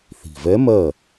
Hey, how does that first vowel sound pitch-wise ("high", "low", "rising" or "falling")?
low